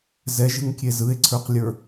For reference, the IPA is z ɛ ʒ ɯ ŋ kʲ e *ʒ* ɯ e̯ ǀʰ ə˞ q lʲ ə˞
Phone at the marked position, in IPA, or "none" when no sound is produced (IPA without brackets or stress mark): z